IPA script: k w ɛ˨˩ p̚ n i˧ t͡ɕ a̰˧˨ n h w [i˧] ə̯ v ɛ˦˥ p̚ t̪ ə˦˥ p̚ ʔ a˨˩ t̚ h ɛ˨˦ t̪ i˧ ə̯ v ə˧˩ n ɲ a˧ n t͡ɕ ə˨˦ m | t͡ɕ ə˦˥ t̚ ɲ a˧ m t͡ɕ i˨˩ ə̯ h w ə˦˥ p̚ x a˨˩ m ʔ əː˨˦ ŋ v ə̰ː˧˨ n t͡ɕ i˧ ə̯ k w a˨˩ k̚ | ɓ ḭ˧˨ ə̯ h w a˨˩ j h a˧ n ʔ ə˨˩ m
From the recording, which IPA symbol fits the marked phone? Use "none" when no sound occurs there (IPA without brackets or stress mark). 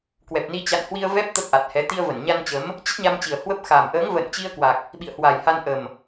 i˧